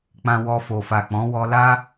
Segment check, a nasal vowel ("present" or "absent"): present